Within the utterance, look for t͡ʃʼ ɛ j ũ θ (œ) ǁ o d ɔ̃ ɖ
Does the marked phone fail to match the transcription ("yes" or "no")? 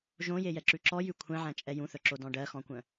no